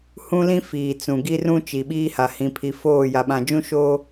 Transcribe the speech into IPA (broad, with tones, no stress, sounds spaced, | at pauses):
h ũ˦ l ĩ˦ f iː˨ t͡s ũ˨ ɡ i˦ r ũ˦ t͡ʃ i˨ ɓ iː˦ h a˨ h ĩ˨ pʰ i˨ f oː˦˨ j a˨ ɓ ã˨ d͡ʒ ũ˦ ʃ oː˦